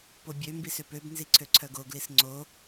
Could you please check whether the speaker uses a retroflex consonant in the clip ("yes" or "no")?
no